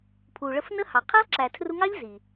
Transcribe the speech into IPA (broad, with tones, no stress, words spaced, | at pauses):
pʰu˨ ɭə˧f nə˦hɑ˨ qʰæ˦lˠǁæ˨tʰru˧ŋɑ˦ʎ zi˨